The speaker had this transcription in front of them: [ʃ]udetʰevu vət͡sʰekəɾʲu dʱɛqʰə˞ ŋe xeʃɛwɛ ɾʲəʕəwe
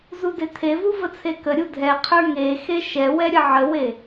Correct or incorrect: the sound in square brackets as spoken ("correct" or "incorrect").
incorrect